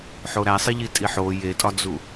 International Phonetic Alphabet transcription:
ħoɾæsˤiʎi tʼiħo jetʼɒd͡zu

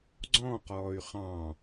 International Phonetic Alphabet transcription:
ɡ͡ǀɔ̃ːqɔːy̯ χɑ̃

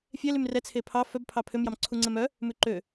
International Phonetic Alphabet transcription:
fʲɛlym rɛt͡sʰe pʰɑ fœbpʰɑ pʰømjɑmǀʰu ŋ͡ǀɛmœ | mʉǃø

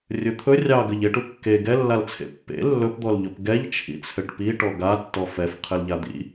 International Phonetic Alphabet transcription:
rʲɵt̪ʰɵ rʲɑ ɡɘʎeʈu kːe ɡɛlːalt͡sʰḛ pːḛ lːɵpd̪ɔlʎɵp ɡɛʎ t͡ʃʰḭt͡sʰɘʈpiʈɔ ɡatːɔ fɛf qʰɘlʎad̪ḭ

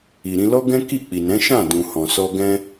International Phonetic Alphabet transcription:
i˨ɾĩ˧lɔ˦ɡɛ̃˦ ki˦˨k͡pi˨nɛ̃˨˦ ʃã˦˨ dũ˨ hɔ̃˨sɔ˧ ɡɛ̃˧

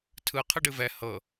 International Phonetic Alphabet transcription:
tʰɯ qʰɯɖɨvɛ hɤ

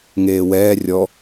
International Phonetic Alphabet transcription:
ŋeːwɛː rʲɔ

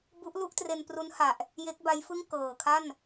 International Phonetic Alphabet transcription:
bu˦˥ʔlu˥˩ʔtre˧n pru˦˥nha˨˩ʔ | je˦˥k̚ba˦˥jfɯ˥˩ŋ kɤː˨˩kʰa˥˩n

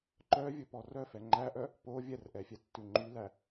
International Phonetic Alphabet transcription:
ǃœvʲɵpɔ rœfɛ ŋ͡ǃæʔœ | po vʲɛrʔɛfʲɛtːʉ ŋ͡ǃylæ

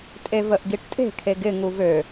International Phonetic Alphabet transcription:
tʼevəʔɡiʈtʼe̤ kʰeɡɪ ŋuvø

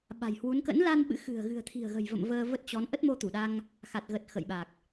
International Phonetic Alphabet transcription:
ɓa̤˨˩jhwu˨˦n kə̰˧˥nla˧n ɓɨ̰˧˥xɨ̤˨˩ə̯ ɣɨ̤˨˩ə̯t̪ʰi̤˨˩ə̯ɣə̤˨˩jvə̰˧˨m vəː˧və˦˥t̚t͡ɕɔ˨˦n ʔə˦˥t̚mo˧t̪u˧˩ɗa˧ŋ | xa˨˩t̚ɣə˨˩t̚ xə̰˧˨jɓa˨˩k̚

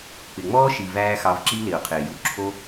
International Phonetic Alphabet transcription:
k͡pɪ˨ŋ͡mɔː˦ʃi˨væː˧ xɑ˧vǁi˦ lɪ˨ʊ̯qʰɪː˨ju˧ ǁʰo˦

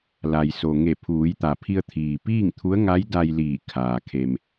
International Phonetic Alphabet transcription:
la˩jso˩ ŋe˧˩ pʰuː˩˧jt̪a˩pʰi˧ə̯ t̪ʰiː˩piː˥˨ŋt̪ʰu˧˥ə̯ ŋa˧˥jda˧j liː˧˩kʰaː˩ kʰe˩m

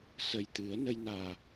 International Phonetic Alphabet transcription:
sə˨˩j t̪ɨ˨˩˦ə̯ nə˧jnaː˨˩

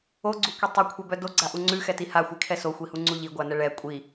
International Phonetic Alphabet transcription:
oɡ͡ǀukʷi tˤukʷʰɛbœ doɡ͡ǀaʔu ŋ͡ǀʉxɛti haxʷikʰɛ soxʷihuŋ͡ǀu ʎiɡʷanɛ ɭɛ kʷʼi

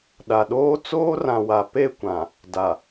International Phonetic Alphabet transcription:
ɗa˨ɗoː˦ t͡soː˦rã˨wa˨ pe˦˨kʷã˨ | da˨

